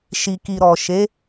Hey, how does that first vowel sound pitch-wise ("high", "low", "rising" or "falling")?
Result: low